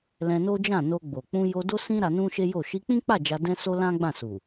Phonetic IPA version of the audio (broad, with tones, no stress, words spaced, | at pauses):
lɛ̃˧no˦d͡ʒã˦˨ no˧ɡ͡bo˨ k͡pũ˧jo˧do˦ sĩ˦ ɾa˧nũ˦ʃe˦jo˦˨ ʃi˧k͡pĩ˦k͡pa˦˨ d͡ʒa˧ dɛ̃˦so˦ lã˦ɡ͡bã˦˨su˨